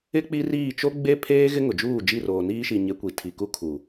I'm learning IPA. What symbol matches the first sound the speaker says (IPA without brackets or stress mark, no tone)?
ɪ